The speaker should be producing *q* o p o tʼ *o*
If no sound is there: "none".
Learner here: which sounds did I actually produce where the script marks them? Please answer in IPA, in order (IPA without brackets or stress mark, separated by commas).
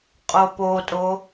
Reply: qʼ, o